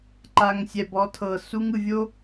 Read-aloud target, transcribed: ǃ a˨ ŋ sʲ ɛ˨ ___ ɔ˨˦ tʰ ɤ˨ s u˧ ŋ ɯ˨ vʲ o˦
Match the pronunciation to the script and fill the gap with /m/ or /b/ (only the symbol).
b